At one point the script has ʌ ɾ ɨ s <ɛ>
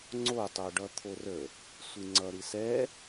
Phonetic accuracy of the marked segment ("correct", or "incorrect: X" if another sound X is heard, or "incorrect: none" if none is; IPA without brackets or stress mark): correct